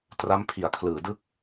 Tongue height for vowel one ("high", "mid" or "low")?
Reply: low